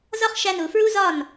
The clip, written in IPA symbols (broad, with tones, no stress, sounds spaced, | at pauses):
z ɒ˦ χ ʃ æ˧ n u˨ f ɹ u˦ z ɒ˦˨ n